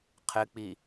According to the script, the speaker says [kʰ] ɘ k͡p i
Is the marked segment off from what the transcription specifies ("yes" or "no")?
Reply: yes